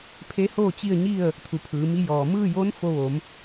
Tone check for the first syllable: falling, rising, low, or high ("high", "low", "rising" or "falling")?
rising